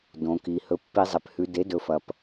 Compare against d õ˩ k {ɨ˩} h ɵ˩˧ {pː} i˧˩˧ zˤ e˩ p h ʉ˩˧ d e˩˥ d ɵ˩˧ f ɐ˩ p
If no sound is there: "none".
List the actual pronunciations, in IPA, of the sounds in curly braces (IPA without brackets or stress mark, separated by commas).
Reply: i˩, pː